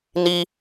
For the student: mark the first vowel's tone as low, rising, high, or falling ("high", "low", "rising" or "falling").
high